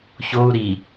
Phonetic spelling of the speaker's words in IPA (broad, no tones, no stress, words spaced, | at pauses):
çou̯ ɾi